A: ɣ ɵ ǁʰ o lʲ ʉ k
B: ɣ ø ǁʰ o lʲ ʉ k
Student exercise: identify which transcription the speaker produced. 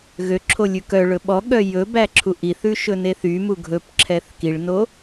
B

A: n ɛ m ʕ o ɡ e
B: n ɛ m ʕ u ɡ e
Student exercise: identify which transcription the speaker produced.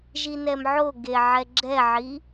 A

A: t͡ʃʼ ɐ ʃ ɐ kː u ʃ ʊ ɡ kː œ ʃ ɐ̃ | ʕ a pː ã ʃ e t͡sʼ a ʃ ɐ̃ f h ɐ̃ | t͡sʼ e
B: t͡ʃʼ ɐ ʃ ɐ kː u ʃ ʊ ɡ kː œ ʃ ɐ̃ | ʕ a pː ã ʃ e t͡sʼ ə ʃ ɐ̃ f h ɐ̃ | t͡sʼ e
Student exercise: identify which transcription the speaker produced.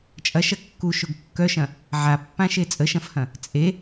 B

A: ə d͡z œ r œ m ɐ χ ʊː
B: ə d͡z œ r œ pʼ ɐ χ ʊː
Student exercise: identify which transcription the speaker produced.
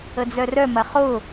A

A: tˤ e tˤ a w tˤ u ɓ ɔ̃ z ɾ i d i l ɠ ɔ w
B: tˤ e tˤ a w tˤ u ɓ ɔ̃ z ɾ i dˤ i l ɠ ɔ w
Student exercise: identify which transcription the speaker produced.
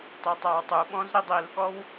B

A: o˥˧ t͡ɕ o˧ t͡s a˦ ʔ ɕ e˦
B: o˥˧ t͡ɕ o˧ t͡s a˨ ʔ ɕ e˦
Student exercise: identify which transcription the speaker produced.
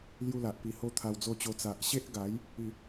B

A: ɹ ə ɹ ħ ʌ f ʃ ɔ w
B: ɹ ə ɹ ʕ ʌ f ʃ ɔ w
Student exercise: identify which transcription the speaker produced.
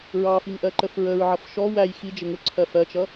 B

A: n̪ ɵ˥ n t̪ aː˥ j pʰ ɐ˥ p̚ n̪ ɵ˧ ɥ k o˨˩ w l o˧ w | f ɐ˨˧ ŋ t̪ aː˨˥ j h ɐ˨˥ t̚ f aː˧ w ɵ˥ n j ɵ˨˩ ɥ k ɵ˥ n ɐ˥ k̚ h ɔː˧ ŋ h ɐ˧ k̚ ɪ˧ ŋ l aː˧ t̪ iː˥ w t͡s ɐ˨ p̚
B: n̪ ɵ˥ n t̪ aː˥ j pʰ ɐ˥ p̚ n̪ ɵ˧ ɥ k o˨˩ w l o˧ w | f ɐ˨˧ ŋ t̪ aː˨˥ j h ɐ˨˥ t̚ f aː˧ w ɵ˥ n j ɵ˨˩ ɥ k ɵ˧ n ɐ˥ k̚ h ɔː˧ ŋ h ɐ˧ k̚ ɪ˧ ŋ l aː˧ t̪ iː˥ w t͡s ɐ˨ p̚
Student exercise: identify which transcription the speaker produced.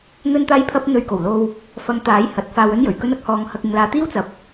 A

